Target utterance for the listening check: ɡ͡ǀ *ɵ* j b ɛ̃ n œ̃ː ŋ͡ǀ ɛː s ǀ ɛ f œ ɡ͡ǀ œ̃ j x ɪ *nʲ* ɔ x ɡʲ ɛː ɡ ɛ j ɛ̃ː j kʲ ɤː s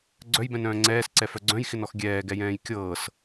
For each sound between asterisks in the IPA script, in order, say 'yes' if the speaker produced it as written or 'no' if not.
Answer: no, no

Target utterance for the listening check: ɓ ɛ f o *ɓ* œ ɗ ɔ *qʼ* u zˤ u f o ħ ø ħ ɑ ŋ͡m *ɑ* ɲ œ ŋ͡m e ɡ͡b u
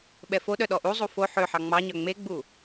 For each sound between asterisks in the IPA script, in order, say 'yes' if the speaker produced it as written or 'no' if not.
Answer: no, no, yes

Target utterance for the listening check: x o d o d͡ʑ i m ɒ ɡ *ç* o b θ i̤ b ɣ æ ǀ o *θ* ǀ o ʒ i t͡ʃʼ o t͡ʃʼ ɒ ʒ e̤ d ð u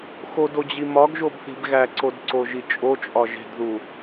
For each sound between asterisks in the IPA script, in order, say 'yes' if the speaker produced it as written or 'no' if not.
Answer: no, no

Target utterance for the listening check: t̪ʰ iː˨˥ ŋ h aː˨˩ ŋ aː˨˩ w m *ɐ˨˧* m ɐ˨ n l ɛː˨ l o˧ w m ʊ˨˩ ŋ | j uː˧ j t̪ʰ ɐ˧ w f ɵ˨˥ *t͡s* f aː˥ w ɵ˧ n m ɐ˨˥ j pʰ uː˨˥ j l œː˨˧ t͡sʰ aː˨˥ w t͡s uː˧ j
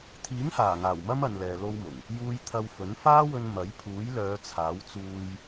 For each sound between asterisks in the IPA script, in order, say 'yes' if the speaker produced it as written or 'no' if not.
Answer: no, no

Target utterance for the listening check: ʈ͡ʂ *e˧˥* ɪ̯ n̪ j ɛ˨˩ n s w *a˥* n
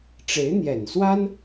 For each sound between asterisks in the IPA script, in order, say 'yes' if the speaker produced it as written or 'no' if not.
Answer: yes, yes

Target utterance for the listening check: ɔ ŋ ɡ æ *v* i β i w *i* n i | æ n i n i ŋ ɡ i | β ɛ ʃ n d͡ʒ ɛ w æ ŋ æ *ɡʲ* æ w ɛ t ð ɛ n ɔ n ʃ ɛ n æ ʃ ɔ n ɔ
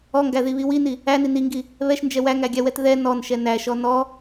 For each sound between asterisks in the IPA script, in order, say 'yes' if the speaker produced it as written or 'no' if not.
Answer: no, yes, yes

